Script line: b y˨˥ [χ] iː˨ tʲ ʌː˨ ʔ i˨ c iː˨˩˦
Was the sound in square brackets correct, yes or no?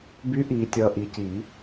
no